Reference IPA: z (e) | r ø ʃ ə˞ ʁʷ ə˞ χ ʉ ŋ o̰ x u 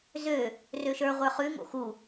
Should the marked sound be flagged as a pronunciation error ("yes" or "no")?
yes